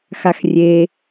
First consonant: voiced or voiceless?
voiceless